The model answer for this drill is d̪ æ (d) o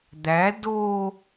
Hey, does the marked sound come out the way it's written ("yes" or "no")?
yes